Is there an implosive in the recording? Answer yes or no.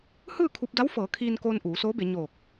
no